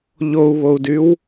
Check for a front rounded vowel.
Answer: present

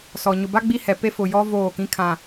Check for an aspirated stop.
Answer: present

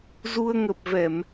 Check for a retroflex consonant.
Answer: absent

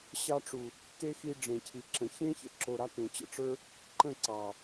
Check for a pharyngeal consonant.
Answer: absent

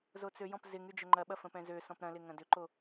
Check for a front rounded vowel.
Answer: present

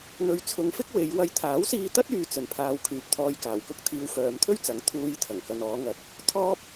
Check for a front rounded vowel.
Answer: present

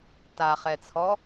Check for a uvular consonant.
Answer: present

